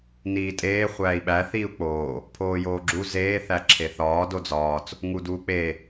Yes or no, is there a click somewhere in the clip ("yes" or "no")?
yes